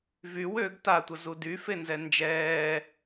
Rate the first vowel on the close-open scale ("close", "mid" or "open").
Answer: close